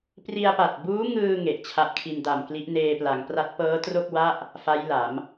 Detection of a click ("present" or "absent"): absent